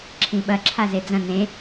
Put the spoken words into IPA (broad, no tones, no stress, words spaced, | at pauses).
ǁʰĩɓɐ ǁʰazed͡zɐ̃ nẽ